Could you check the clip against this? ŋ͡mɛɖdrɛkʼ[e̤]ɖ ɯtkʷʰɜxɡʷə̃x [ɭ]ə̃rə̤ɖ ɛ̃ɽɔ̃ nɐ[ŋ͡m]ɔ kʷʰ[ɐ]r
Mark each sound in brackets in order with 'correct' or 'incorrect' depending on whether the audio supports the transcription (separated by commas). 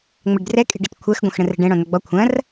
correct, incorrect, incorrect, incorrect